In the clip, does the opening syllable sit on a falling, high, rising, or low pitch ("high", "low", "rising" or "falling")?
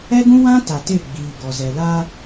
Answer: high